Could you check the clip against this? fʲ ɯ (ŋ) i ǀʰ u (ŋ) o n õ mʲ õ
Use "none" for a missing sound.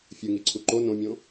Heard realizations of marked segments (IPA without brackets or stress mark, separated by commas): ŋ, ǃ